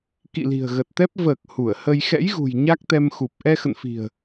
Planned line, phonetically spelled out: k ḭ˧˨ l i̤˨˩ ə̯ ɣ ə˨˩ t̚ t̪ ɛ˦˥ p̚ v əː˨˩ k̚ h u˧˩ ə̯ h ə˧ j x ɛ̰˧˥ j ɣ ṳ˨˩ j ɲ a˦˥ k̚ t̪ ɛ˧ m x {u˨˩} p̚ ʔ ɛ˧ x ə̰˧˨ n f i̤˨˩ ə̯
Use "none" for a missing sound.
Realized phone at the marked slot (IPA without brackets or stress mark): u˨˩